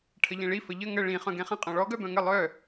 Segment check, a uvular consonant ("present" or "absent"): present